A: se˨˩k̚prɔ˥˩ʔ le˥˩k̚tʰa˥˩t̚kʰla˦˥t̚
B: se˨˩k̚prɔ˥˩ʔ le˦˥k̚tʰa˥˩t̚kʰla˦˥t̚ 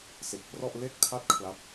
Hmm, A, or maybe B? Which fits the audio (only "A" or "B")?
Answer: A